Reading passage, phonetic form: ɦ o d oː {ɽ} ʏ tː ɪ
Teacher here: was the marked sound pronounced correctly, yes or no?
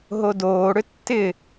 yes